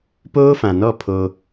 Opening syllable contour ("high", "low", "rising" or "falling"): high